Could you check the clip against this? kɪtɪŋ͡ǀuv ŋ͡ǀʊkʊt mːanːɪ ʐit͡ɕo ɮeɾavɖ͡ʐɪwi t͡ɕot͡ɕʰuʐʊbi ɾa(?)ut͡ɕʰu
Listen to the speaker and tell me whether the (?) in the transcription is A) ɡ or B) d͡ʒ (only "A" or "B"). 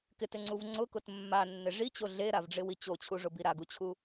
A